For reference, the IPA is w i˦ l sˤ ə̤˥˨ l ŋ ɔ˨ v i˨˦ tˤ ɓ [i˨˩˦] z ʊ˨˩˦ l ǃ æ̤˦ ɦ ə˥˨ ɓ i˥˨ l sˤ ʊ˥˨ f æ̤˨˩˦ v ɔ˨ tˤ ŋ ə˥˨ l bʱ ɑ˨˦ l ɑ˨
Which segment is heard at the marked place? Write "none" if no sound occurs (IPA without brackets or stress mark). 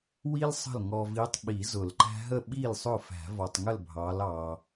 i˨˩˦